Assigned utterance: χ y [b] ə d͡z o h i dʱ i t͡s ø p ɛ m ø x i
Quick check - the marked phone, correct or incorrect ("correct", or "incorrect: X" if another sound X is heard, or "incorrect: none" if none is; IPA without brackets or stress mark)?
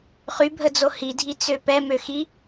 incorrect: bʱ